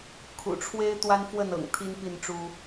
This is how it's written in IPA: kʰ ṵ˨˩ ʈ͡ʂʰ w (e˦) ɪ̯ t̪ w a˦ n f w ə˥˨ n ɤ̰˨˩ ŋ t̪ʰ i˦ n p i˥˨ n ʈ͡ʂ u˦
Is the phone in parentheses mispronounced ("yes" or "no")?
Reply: no